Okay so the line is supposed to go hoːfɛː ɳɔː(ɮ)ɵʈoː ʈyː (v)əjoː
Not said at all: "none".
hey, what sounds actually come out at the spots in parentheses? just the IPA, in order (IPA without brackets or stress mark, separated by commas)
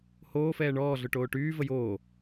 ɮ, v